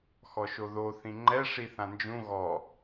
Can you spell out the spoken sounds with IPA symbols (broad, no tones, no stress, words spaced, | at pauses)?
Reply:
xɔʃoðo θĩŋ͡ǃɛ ʂiθãnd͡ʒũ ɣɔ